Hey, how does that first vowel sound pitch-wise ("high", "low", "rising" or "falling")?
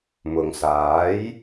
low